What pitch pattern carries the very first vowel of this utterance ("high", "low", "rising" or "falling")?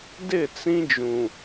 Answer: falling